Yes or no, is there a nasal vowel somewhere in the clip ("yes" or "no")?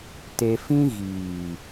yes